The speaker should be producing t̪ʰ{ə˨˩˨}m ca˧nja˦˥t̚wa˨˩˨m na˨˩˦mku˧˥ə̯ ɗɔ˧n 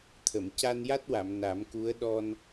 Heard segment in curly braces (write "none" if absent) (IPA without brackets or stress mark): ə˨˩˨